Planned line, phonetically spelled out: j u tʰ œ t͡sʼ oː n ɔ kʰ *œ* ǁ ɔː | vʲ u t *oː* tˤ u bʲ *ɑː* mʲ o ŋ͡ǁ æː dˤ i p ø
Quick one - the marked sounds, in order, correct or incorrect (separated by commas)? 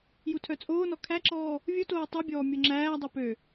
incorrect, correct, incorrect